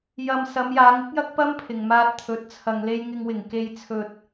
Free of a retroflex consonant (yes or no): yes